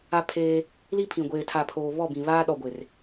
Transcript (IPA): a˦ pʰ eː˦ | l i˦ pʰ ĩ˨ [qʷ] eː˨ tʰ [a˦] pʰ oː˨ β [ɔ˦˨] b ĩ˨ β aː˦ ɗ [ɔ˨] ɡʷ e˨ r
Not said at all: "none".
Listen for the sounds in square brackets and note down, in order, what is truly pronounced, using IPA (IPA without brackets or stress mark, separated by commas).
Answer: ɡʷ, a˨, ɔ˦˨, ɔ˨